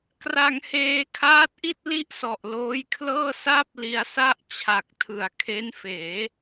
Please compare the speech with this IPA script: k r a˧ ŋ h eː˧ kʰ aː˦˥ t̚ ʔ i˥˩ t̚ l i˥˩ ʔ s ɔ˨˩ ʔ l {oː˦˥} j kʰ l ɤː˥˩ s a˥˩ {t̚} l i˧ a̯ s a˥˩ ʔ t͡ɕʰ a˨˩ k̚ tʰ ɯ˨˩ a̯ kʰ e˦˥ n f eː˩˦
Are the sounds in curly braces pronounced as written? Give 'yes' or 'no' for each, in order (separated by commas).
yes, no